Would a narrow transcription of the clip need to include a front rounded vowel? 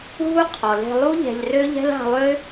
yes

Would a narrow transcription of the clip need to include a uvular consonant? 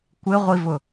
yes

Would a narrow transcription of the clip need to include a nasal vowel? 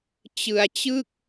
no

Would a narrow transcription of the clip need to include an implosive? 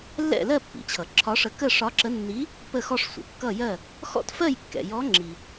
no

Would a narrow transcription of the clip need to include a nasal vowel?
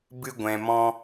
yes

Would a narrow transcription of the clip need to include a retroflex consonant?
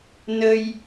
no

